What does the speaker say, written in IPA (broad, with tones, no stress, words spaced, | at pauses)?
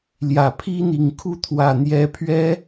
ljä˨˩pʰi˥n̪i˨˩ŋ kʰu˥˩t̪ʰwä˨˩ n̪jɛ˧˥pʰɥɛ˥